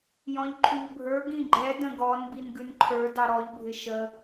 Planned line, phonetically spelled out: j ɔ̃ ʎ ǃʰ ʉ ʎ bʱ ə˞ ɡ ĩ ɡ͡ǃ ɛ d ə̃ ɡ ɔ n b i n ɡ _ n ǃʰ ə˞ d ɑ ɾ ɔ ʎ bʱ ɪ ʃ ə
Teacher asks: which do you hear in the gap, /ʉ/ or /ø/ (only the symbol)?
ʉ